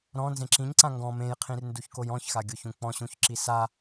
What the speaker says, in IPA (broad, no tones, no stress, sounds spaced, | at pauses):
ɾ ɔ̃ n z ẽ ǁ ĩ ɲ ǀ ã ŋ ɡ ɔ̃ m ẽ j qʰ ĩ r n d u ç k o j ɔ̃ ç x a ɡʲ o ç ũ k͡p ɔ̃ ɕ ũ ç ǁ i s a